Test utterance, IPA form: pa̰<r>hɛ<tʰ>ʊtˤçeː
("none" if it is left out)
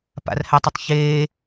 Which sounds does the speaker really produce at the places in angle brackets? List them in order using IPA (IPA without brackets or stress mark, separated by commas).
r, tˤ